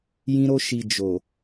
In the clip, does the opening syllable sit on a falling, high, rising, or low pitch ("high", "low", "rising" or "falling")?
high